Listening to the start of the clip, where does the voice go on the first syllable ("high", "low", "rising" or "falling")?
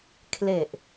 low